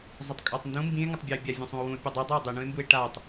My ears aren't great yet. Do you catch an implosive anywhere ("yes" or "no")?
no